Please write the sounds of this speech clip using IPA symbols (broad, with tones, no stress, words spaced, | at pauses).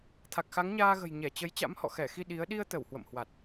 t̪ʰa˨˩k̚xa˨˦ŋɲaː˧ɣə̤˨˩j ɲɛ˧˩t͡ɕə˨˦j t͡ɕa̰˧˥mhɔ̰˧˨ xɛ˧˩xi˧ ɗi˨˦ə̯ ɗi˧ə̯t̪ə˧˩w hwə̰˧˨mhwa˨˩t̚